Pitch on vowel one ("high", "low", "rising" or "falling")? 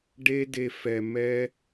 high